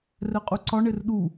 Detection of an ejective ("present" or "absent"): present